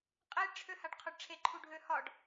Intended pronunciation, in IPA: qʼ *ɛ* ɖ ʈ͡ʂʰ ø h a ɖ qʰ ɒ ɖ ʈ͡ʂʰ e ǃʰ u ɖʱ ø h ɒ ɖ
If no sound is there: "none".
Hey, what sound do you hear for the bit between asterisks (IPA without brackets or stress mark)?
e